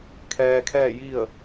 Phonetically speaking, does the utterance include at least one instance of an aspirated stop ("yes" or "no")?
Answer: yes